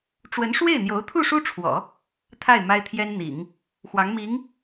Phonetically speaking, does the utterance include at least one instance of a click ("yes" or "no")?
no